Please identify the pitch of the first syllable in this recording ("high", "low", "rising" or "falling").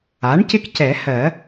rising